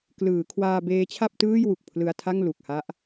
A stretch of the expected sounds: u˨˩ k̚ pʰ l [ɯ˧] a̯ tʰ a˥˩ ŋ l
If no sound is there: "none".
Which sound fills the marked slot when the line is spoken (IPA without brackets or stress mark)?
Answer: ɯ˧